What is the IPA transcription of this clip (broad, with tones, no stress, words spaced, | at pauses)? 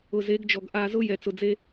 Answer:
ʊ˨ze˨˦ɡd͡ʒɔ˨ɡ ʔa˨zʊ˦ jɛ˨t͡sʊ˨d͡ze˦